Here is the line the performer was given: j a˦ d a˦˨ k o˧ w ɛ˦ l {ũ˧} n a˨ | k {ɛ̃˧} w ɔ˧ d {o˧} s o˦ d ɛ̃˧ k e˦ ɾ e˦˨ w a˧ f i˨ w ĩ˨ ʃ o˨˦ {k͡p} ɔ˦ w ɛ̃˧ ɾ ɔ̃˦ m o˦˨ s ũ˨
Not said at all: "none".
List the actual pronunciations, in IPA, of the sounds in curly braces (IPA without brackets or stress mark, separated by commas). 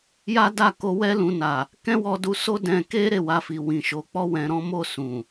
ũ˧, ɛ̃˦, u˧, k͡p